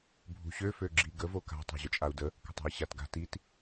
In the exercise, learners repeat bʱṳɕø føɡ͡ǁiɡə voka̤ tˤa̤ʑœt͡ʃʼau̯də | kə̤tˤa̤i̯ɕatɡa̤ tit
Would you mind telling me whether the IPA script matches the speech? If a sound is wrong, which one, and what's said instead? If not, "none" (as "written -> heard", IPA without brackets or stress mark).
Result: none